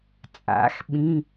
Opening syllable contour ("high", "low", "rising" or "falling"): rising